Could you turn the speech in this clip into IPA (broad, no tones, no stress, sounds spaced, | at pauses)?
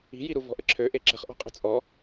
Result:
i̤ j i ɾ u v ɔ̤ ʔ ə ǁʰ ø ʔ e ǁ ə̤ χ ʔ ɔ̤ qʼ ə̤ t͡sʼ ɔ